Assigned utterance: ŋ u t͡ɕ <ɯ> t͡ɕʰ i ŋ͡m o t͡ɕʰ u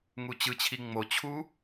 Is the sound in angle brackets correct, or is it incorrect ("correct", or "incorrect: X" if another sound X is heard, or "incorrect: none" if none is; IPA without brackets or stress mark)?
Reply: correct